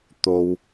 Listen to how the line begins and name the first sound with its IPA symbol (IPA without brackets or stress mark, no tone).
t̪